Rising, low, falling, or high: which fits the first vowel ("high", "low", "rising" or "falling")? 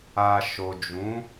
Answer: low